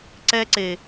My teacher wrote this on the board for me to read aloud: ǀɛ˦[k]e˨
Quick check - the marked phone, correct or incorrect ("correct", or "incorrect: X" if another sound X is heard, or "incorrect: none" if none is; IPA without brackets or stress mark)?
incorrect: ǀ